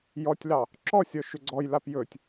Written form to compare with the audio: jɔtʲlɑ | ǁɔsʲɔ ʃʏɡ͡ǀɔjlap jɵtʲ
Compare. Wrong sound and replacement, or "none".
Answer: none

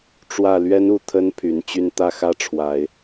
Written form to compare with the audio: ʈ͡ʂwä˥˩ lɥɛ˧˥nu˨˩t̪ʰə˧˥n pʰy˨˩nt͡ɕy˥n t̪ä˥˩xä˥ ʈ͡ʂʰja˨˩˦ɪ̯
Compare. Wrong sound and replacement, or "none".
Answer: j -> w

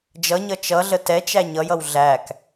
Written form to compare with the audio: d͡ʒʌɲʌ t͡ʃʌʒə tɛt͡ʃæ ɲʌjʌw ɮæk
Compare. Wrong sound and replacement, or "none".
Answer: ʒ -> ɮ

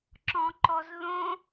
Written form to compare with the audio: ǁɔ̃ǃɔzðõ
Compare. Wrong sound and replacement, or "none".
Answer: none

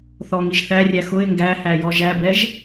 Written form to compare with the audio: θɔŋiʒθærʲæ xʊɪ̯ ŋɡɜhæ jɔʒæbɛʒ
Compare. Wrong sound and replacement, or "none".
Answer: ɜ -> æ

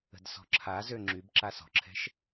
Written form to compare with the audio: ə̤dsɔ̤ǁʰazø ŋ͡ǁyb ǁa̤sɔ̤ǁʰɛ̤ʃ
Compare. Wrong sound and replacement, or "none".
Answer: a̤ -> a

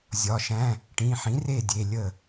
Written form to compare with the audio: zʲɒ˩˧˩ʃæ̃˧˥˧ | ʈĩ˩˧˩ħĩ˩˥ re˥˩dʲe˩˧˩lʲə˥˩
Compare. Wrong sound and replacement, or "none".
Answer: none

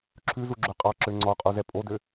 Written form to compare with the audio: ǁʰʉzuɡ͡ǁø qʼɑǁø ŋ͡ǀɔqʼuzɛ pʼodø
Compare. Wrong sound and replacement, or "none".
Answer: none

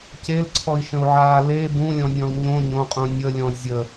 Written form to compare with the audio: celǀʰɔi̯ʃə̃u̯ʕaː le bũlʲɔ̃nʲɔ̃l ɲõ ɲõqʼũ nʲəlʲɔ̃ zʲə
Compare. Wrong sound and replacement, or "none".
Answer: none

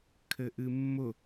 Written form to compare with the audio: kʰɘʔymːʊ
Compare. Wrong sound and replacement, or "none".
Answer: y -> ɨ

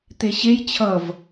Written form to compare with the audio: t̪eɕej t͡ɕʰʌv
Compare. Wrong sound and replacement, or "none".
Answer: none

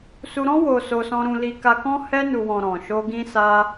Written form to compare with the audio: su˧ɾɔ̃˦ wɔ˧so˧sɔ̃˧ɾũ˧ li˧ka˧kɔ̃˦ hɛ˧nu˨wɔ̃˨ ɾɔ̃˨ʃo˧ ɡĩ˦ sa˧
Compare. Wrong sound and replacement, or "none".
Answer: ɔ˧ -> o˧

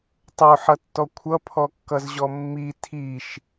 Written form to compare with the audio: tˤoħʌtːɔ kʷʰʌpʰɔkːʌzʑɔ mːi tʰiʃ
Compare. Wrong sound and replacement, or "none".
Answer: none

